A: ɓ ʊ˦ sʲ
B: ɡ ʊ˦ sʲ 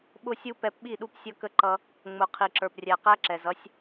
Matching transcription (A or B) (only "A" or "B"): A